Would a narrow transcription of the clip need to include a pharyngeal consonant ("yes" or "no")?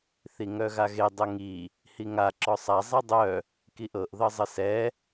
no